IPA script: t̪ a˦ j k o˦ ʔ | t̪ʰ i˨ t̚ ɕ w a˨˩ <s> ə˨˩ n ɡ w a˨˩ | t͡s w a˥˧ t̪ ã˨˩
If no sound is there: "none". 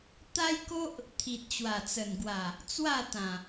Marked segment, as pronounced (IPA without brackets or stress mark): t͡s